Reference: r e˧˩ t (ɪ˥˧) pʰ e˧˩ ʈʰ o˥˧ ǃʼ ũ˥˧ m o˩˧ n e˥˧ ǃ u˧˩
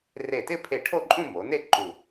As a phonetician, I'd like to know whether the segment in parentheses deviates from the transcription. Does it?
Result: no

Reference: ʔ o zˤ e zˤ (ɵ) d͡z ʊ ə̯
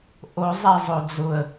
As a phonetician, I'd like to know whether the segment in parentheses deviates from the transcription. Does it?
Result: yes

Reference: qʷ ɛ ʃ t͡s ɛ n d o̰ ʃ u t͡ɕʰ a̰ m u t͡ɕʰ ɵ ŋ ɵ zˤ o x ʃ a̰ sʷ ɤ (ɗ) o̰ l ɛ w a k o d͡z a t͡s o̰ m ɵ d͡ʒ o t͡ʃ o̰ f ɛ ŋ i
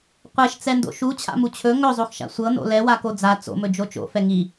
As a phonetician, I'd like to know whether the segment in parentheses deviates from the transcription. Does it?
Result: yes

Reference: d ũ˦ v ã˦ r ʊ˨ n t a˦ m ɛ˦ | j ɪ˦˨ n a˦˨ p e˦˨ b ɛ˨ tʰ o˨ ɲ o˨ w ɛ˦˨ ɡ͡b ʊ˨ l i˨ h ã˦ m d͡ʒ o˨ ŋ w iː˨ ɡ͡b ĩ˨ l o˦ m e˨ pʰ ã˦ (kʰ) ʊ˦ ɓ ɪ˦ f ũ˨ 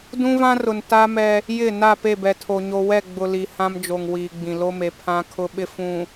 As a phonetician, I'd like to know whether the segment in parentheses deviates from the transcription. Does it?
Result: no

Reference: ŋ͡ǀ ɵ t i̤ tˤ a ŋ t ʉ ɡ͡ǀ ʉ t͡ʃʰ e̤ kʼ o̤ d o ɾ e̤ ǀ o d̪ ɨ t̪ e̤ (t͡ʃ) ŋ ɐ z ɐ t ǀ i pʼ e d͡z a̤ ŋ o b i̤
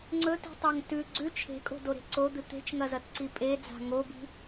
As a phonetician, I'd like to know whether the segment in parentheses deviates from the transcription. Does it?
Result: no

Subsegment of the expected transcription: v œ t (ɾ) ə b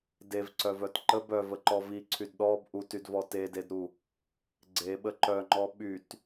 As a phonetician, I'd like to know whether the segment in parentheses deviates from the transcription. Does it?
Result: yes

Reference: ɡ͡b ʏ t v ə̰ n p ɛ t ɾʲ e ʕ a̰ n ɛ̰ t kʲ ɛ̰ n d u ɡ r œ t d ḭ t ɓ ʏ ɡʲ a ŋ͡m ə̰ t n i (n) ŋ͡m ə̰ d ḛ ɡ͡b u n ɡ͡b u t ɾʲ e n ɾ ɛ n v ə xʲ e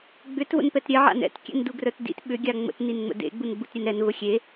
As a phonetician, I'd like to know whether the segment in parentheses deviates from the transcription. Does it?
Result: no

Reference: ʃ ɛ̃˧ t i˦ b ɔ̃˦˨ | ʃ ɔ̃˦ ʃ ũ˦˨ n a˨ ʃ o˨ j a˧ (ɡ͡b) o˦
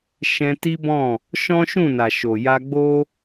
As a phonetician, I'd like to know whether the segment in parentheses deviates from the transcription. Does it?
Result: no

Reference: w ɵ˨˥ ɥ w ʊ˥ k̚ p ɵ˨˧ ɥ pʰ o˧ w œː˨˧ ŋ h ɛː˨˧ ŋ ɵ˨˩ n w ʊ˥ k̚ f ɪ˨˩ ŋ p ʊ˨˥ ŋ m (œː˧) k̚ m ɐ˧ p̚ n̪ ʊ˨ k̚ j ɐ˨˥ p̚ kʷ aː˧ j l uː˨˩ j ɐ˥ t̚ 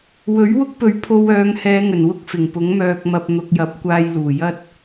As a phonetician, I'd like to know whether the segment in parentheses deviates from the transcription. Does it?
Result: no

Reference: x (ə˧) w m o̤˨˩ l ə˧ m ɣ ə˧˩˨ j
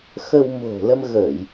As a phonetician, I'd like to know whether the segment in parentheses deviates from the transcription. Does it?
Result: no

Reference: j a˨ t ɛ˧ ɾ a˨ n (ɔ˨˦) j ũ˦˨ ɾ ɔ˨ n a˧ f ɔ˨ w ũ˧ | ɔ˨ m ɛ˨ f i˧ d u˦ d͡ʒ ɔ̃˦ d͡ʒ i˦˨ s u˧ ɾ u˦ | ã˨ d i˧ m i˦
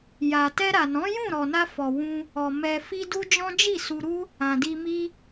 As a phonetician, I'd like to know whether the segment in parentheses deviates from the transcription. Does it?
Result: yes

